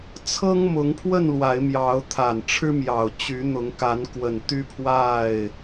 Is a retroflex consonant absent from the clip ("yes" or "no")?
no